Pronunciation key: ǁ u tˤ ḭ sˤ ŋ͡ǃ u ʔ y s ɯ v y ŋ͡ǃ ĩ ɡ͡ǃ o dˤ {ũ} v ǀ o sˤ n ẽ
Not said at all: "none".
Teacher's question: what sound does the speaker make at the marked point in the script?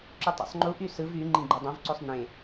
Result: õ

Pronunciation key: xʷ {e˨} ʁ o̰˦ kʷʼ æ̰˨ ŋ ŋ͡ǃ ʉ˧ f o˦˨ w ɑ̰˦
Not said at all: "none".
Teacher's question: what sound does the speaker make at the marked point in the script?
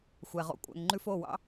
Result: ɛ˨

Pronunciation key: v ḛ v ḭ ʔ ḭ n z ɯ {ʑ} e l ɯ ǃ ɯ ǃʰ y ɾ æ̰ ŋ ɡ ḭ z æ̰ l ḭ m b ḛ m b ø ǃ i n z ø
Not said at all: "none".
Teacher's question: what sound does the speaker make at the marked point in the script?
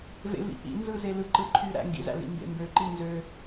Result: z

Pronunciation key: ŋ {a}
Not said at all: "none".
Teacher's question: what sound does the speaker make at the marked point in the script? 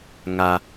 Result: a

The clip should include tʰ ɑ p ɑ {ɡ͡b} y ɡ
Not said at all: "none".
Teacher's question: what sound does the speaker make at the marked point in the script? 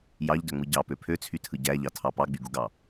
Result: ɡ͡b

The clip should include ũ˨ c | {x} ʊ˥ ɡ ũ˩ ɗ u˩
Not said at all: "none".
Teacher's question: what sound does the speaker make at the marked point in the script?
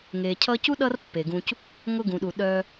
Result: ŋ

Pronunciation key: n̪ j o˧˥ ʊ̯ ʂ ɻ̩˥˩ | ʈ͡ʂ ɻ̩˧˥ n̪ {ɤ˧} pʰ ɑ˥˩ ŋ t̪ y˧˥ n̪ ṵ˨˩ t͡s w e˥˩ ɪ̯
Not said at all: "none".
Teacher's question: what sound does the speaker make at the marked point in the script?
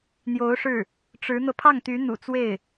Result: ɤ˧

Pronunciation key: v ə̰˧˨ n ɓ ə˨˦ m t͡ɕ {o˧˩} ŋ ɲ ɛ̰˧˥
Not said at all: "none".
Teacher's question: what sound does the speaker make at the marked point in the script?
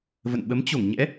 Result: o˧˩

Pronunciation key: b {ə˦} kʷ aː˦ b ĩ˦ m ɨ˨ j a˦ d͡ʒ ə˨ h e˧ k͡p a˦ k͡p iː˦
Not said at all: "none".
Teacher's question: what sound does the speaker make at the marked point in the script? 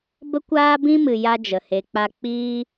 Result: ə˦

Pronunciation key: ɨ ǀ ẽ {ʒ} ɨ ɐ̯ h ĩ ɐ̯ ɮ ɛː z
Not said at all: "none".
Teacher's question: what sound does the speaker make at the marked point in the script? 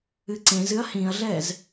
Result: z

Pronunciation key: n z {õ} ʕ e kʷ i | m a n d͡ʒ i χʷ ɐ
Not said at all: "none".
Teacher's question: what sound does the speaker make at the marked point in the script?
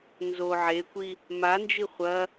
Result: o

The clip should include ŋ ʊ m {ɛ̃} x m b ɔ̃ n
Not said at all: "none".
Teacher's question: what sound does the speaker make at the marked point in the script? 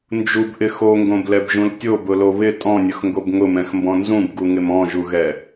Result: ɛ̃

